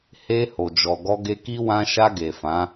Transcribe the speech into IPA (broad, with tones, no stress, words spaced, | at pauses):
he˧ ho˨d͡ʒɔ˨ɡɔ˧ ɡe˧ki˦ wã˧ʃa˧ ɡe˨fã˨˦